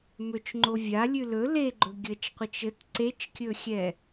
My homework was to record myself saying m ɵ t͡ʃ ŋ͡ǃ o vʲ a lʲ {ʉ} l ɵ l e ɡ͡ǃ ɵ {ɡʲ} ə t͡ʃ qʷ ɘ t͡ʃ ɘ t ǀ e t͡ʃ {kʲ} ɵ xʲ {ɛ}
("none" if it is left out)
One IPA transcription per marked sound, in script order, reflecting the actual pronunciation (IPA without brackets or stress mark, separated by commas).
ʉ, ɡʲ, kʲ, ɛ